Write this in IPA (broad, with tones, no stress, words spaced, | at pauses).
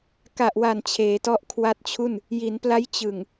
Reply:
ka˨˩ʔwa˨˩n t͡ɕʰeː˩˦tɔ˦˥ʔkʰwa˦˥t̚t͡ɕʰu˥˩n | ji˩˦npla˦˥jt͡ɕɯ˨˩ŋ